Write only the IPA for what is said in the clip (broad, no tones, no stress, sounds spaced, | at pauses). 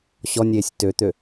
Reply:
ɕ ɔ nʲ eː sʲ t ø t̪ ø